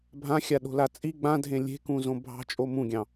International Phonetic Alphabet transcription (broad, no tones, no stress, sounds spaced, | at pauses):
bʱ ã xʲ a ɗ o̤ l a t͡sʼ i ɡ͡b ã dʱ ẽ lʲ e̤ k ũ z õ bʱ ɑ̤ t͡ʃʼ o m ũ ɡʲ ɑ̃